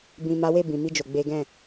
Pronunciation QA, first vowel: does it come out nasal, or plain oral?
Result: nasal